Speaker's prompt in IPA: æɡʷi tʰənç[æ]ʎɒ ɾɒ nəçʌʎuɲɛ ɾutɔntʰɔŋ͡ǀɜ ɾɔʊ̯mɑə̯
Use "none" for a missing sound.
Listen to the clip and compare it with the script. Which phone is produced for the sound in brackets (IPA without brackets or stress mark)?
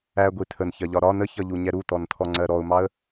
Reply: ɜ